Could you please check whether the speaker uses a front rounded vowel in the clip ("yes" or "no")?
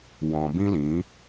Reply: no